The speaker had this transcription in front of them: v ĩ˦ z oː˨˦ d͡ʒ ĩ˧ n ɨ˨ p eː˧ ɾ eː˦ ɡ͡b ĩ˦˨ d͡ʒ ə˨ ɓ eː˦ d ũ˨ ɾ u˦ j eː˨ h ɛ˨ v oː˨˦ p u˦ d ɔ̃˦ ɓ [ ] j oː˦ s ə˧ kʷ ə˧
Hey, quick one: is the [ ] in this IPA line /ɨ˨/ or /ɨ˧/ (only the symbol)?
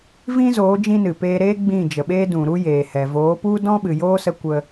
ɨ˨